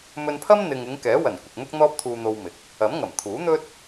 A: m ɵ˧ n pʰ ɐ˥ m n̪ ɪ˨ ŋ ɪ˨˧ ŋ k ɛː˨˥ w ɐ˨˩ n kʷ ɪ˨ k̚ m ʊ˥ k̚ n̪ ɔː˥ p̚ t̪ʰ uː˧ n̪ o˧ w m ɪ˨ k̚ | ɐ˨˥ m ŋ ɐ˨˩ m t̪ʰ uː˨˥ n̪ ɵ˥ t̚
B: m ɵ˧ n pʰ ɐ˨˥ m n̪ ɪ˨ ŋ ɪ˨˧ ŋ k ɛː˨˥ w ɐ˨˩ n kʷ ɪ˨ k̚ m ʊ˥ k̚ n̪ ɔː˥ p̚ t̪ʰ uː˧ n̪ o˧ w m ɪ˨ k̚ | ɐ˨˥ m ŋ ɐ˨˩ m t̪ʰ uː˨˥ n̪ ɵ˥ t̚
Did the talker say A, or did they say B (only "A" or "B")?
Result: A